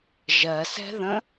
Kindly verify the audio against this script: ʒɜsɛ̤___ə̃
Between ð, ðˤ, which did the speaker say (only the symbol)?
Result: ð